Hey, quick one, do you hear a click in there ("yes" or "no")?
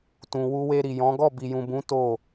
no